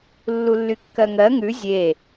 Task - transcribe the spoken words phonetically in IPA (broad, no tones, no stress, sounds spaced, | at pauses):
lː u lː y kː ɜ ŋ ɜ ŋ ʉ zʲ e